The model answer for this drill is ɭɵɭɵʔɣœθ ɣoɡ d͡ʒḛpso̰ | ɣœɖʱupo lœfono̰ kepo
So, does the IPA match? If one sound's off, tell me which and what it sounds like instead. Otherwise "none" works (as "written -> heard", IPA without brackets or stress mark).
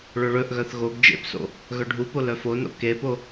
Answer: none